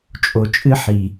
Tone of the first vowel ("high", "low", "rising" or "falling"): low